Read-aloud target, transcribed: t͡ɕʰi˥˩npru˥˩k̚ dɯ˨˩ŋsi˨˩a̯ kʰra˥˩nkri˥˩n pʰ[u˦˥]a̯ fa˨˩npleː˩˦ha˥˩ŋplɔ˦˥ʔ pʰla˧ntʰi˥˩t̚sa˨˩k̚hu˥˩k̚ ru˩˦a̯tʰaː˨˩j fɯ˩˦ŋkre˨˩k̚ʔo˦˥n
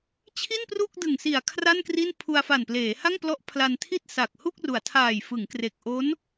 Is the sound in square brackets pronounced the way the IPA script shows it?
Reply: no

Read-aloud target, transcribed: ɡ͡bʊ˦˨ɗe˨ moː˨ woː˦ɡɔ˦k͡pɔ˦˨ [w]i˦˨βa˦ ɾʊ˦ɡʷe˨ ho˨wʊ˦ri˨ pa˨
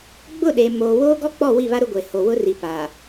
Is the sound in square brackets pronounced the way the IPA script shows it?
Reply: yes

